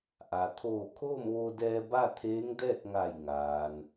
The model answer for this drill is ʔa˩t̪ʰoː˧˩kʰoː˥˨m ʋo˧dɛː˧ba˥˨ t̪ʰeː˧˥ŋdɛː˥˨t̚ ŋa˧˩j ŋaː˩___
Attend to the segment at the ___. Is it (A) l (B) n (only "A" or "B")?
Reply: B